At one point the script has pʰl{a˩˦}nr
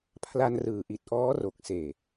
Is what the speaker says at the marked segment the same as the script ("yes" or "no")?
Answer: no